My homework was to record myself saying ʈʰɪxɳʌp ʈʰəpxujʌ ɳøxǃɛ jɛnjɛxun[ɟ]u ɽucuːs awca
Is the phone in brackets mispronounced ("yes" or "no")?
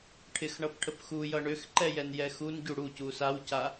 no